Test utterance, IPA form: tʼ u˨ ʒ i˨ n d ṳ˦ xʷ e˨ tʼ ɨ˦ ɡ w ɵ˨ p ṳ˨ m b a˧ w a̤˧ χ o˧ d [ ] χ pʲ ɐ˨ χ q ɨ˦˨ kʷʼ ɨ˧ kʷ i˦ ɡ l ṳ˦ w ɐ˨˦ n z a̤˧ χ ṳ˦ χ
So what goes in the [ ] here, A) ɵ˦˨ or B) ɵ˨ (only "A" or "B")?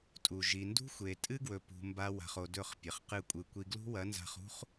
A